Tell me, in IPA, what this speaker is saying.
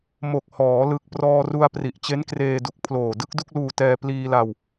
mo˨˩k̚hɔː˩˦ lɯ˨˩k̚prɔː˧ru˧a̯ pri˨˩ʔt͡ɕe˦˥nkreː˧du˨˩k̚ pʰloː˨˩dɯ˥˩k̚ du˥˩k̚luː˧tɛː˧ pliː˧la˧w

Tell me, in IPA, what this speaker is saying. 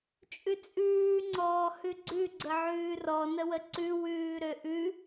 t͡ʃʼʉt͡sʼʉː ŋ͡ǀɔːhʉɡ͡ǀʉ ɡ͡ǀəʕʉːrɔ nəwəǀʉ wʉːɾøʔʉ

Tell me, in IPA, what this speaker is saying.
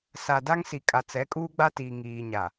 sa˨da˦ŋsi˨kʼa˨ t͡sɛ˨˦kʼuː˦ɡ͡ba˦tiː˨ ŋiː˨ɲa˨

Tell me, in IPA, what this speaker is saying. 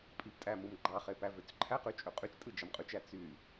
pʼiptʼæ mɯmɡ͡ǃɑχe pævøt͡sǃʰæqy t͡ʃʼøqʼyt͡ʃtʼɯ d͡ʒɑmqʼyt͡ʃæ t͡sy

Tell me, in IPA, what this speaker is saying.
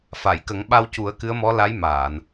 fa˨˩˨jkə˨˩˦ŋɓa˧w cu˨˩˦ə̯kɨ˧˥ə̯mɔ˧˥ la˧˥jmaː˨˩˨n

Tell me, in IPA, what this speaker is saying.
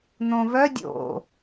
n̪õvœ dʲo̰

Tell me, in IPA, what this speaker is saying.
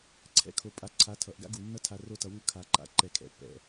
ǀʰɛ̰˧kʰo˨ pʼa˧ǀʰa˨˦tʰʌ˨ʔ ɡa̰˦ɡu˨ nːʌ˦tʰa˧ ro˧tʌ˨wu˧ kʰa˨ǃa̰˨˦ǃɛ˨ kʰɛ̰˨pːɛ̰˨

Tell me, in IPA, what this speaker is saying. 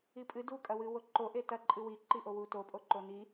ipʼɨ dukʼɐwɨ woǃoʔe tɐǃʼɨ wiǃiʔo wutopʼo ǃoni

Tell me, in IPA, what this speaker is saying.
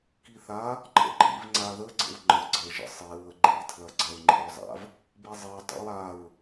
kiθa | ǃʰə̰ǃḭv ŋ͡ǀaðə ɡ͡ǀə̰wŋ͡ǃə ɡ͡ǀə ʒə̰sˤi ɹəɡ͡ǃi tʰlɐɡ͡ǀɐɹŋ͡ǃḭɹzˤa̰v | bizˤi dˤḭwaɹ

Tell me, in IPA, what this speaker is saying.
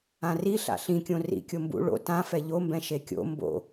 ãriɬa̰ ɬĩkʲõ rḭ kʲombṵ ɭo̰ tã fɛʎombɛ̃ ʃekʲo̰ mbo̰

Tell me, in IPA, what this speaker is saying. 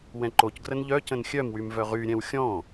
wɛ̃ǃocɡrən ʎœ cə̃nxʲœmwym vœʁyɾʲɛ̃w xʲɔ̃

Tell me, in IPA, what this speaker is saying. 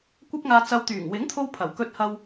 kʷɐ˥p̚ŋaː˧ t͡sɐ˨wt̪yː˨˩ŋ wɪ˨˥ŋt̪ʰo˧w pʰɐ˨˩wkɵ˧t̚hɐ˧w

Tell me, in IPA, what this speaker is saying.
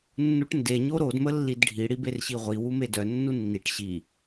nːuʈnde ɲoɾod məlːidɖʱi ɽiberɕiʁʷi wumedœ nːunːiʈ ɕi

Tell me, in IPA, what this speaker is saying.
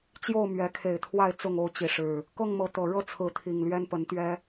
t͡ɕjo˥˨ʊ̯mɥɛ˨˦kʰe˨˩ɪ̯t̪ʰwa˥˨ɪ̯ t͡sʊ˥˨ŋo˥˨ʊ̯t͡ɕi˨˦ʂɻ̩˨˩ | kɤ˥˨ŋmɤ˨˦ t̪ɤ˨˩ ɻɤ˥˨ t͡sʰɹ̩˨˦t̪ʰi˨˩ŋlɥɛ˦npə˨˦n t̪ɥɛ˦

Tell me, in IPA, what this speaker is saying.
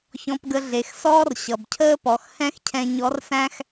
çɔ̃˧pɡə˧ ɮe˩˧xsɔː˥rɕʌ˩bcʰəː˥ pɔ˩˧xhɛ̃˥xcʰɛ̃˧ ɲɔ˧˥rsæ̃˥x

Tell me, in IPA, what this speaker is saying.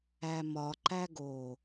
æmɒ ǃæɡo

